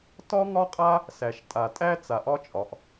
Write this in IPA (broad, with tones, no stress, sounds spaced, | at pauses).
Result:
t ɒ˦ ŋ ɒ˦ qʼ a˦ | s æ˨ ʃ tʼ a˨ tʼ æ˦ t͡s a˨ ʔ ɒ˦ t͡ʃʼ ɒ˨ ʔ